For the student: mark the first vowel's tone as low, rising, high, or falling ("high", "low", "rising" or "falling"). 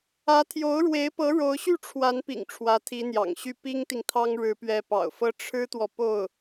rising